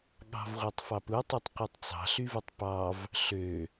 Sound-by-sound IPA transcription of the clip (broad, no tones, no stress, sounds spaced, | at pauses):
ɠ ɑ̤ v ʁʷ æ tˤ f ɑ p u tˤ i tˤ qʷ i tˤ t͡s ɑ̤ ɬ y v u tˤ p ɑ v | ɬ ø